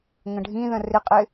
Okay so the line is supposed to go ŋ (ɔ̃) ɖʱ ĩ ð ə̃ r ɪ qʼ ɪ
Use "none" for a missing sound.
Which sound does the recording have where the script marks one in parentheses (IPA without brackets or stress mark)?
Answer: ə̃